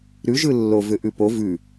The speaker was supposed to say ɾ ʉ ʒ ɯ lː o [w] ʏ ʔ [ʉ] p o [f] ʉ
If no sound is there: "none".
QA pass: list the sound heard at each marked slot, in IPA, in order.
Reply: v, ʉ, v

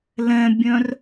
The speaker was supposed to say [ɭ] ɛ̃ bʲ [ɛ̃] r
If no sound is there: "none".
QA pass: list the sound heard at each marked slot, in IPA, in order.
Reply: l, œ̃

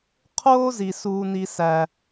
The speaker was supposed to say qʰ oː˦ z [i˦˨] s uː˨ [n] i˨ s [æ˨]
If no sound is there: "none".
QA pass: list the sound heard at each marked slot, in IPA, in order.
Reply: i˨, n, æ˨

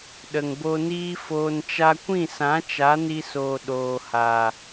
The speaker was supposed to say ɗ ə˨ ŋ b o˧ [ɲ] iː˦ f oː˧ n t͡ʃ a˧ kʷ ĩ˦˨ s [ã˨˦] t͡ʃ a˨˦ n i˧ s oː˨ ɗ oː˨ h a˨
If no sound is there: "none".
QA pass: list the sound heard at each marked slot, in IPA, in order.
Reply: n, ã˨˦

